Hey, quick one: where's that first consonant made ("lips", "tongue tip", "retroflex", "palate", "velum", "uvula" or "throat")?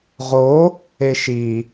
uvula